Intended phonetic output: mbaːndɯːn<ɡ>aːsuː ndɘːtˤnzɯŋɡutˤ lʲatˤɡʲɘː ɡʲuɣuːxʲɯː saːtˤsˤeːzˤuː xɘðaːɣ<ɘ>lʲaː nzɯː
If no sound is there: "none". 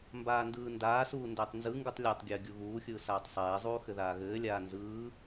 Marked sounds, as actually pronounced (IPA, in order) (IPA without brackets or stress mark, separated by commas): d, ɘː